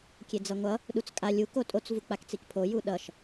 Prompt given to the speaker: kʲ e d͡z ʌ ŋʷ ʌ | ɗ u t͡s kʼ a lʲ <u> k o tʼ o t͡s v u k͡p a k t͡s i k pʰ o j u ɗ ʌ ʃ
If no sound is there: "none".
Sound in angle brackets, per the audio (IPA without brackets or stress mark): u